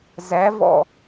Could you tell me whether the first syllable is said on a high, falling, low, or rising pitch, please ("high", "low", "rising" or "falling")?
rising